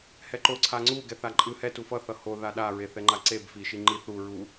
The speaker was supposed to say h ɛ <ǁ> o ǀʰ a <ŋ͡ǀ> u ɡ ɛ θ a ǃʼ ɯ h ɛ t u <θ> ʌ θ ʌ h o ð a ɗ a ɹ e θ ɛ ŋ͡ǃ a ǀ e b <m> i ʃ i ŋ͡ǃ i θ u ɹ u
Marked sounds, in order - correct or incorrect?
incorrect: ǃ, correct, incorrect: f, incorrect: f

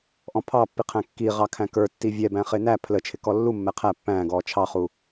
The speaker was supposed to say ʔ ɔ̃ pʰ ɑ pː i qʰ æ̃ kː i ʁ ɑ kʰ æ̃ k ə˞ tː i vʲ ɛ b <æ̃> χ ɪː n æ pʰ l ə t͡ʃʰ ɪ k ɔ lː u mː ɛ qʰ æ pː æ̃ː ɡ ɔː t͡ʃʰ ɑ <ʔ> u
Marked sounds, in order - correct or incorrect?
correct, incorrect: χ

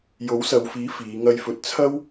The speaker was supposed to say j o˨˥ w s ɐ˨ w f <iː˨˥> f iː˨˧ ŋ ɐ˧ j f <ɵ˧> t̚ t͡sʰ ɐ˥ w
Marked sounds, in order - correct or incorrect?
correct, correct

